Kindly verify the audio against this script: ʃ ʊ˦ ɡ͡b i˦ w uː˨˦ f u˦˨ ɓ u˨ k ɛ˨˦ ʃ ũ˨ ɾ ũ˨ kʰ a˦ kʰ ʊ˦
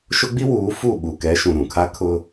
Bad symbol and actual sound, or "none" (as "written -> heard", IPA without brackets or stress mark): none